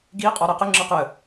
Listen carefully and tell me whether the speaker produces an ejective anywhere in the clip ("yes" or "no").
yes